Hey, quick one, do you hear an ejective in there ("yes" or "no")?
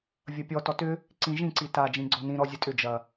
yes